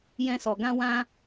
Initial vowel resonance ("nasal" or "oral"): nasal